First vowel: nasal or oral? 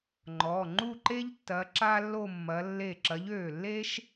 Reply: oral